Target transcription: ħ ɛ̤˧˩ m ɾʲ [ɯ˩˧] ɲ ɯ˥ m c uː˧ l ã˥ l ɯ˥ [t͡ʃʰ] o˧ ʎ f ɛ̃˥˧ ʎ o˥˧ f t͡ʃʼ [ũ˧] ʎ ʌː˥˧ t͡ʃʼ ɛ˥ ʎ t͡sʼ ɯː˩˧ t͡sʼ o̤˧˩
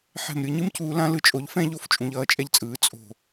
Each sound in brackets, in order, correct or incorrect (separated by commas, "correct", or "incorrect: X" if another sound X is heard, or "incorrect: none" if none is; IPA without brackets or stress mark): correct, incorrect: t͡ʃʼ, correct